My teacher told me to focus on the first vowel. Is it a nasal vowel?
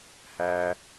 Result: no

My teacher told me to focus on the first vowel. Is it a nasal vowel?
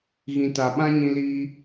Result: yes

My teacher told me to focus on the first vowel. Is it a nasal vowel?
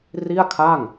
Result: no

